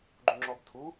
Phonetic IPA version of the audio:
ɡ͡ǃ u ŋ͡ǁ ɔ b tʰ u

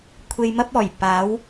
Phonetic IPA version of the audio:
kʷʰ e˧ j m ɐ˥ p̚ ɔː˨˩ j p aː˨˥ w

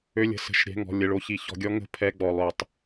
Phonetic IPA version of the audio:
ø˧ lʲ ə̤˩˧˩ s ə̤˧˩˧ ʃ ɾʲ ɛ̤˩˧˩ ŋ ɔ̤˩˧˩ lʲ ə˩˧˩ ɭ o˧ ç i˧˩˧ ç ɔ̤˧˩˧ ɡʲ ɔ˧˥ ŋ ə̤˧˩˧ pʰ ɛ˧˥˧ ɡ͡b ɔ˩˧˩ lˠ ø˧˩˧ tˤ

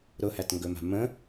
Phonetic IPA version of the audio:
ɾ ʊ h æ t ŋ ɡ ɵ m a̤ m ə̃

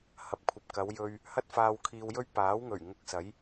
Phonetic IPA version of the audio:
h ɐ˨ p̚ kʷʰ ɐ˨ p̚ k ɐ˨˧ w j ɵ˧ ɥ | h ɐ˥ t̚ f aː˧ w kʰ iː˧ w j ɵ˥ ɥ p aː˨˥ w ŋ ɵ˨˩ ɥ ŋ ʊ˧ k̚ s ɐ˨˥ j

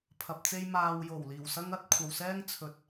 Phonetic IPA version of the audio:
pʰ ɐ˧ p̚ t͡s e˥ j m aː˨ w j o˨˩ w l iː˨˩ w s ɐ˥ ŋ ɐ˨˥ t̚ kʷʰ ɐ˨ w s ɛː˥ ŋ t͡sʰ ɵ˨˥ t̚

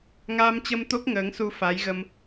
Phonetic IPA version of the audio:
ŋ aː˧ m t͡ɕ ə˧ m t̪ o˦˥ k̚ ŋ əː˨˦ ŋ s u˧ f a˨˦ j ɣ ə˧ m

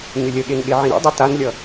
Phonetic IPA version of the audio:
ɲ ʏ lʲ ə ɠ e n ɠ e ʕ ĩ ɾ ḭ dˤ i t a n lʲ ʌ

